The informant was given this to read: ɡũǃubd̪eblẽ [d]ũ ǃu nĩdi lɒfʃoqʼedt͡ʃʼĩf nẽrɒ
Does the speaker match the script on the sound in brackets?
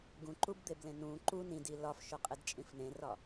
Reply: no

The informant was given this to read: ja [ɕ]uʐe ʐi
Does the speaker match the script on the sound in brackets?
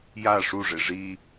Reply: no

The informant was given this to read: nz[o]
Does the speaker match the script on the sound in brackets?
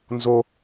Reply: yes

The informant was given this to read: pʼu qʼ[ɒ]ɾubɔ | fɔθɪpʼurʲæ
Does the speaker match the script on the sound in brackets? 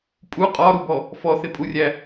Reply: yes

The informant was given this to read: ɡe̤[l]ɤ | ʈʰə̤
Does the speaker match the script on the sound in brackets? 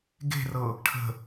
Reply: no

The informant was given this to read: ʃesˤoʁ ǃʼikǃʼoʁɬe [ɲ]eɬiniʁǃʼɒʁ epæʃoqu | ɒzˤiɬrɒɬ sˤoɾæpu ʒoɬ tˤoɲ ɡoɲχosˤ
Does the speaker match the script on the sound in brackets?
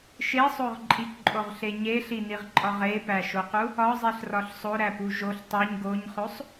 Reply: yes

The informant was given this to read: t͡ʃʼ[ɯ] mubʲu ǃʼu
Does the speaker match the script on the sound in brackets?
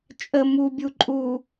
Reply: no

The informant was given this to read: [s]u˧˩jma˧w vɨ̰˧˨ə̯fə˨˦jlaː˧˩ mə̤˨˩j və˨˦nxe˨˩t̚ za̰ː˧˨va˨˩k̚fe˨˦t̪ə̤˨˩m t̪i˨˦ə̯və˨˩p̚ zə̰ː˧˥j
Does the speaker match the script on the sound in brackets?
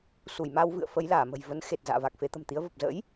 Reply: yes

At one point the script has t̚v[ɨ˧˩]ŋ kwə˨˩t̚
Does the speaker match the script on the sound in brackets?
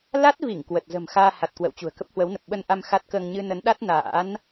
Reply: no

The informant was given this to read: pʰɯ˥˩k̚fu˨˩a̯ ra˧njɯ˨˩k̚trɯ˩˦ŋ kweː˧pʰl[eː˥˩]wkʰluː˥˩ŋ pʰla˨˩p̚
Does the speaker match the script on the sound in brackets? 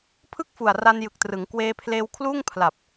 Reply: no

